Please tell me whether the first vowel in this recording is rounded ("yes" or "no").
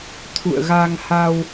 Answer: yes